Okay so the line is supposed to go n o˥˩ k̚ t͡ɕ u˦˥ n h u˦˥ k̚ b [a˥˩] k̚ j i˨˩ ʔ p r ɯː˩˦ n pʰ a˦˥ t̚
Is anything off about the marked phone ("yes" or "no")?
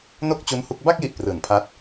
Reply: no